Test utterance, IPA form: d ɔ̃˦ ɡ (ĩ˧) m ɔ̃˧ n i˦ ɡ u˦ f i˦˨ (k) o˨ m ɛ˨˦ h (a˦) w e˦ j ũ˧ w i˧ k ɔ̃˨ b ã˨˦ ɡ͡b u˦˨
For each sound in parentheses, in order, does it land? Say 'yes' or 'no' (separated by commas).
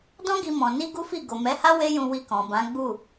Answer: no, no, yes